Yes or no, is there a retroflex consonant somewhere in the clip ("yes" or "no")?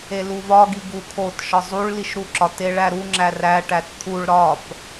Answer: yes